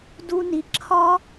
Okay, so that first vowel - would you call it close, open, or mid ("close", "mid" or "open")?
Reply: close